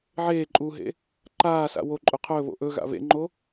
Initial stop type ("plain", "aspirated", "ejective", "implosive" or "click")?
click